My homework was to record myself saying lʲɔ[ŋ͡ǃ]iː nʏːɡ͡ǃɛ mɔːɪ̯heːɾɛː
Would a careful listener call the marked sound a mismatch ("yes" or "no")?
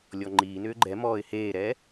no